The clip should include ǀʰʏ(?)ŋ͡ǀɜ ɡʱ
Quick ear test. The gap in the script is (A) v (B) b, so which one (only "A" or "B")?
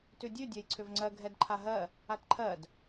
A